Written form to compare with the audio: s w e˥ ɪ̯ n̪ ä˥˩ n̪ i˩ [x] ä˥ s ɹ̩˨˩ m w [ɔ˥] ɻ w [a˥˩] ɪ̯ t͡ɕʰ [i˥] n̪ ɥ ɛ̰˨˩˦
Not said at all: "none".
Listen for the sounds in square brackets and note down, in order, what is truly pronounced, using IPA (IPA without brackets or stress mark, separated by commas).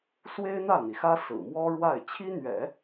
x, ɔ˥, a˥˩, i˥